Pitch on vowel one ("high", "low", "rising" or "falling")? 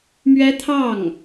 high